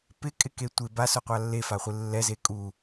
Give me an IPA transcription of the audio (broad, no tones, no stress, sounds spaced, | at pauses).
p ɪ kʼ ɪ k e tʷ ɪ b a s ʊ qʷ a lː e f a χʷ ɪ lː ɛ z e kʼ u